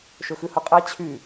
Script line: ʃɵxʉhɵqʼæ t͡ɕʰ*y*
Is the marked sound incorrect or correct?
correct